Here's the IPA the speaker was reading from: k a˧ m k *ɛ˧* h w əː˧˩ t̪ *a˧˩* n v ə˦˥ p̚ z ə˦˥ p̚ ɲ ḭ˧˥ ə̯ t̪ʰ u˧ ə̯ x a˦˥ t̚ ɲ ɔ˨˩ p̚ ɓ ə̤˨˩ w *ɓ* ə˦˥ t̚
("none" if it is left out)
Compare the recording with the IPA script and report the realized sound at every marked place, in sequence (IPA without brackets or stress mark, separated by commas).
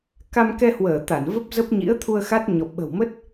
ɛ˧, a˧˩, m